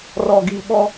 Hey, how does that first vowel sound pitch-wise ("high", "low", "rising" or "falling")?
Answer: low